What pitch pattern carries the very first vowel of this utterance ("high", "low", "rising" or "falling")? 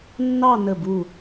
falling